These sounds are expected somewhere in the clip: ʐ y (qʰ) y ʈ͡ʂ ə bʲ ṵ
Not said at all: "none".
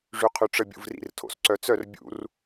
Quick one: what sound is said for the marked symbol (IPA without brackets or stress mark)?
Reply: qʰ